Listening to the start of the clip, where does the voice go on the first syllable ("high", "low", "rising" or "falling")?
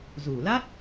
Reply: low